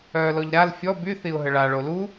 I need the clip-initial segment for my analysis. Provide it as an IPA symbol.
œː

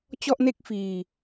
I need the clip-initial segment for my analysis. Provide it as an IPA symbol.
t͡ɕ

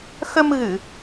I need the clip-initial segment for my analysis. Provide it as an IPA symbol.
x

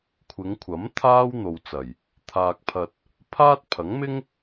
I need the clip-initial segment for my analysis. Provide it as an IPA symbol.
kʷʰ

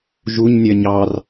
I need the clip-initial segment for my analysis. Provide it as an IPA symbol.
ʒ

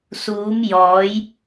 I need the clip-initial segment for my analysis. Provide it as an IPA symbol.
s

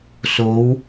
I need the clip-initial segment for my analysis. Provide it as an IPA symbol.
s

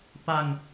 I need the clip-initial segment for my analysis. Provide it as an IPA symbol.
p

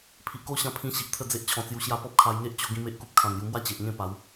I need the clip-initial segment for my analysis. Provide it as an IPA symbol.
pʰ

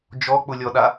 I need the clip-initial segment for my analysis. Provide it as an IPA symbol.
d͡ʒ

